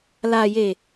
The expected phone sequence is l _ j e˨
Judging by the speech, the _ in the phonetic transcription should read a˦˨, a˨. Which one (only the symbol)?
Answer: a˨